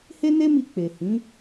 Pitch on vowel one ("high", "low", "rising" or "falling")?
high